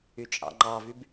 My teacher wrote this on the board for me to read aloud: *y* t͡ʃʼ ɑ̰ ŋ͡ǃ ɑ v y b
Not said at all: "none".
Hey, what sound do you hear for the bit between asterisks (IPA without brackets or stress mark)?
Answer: y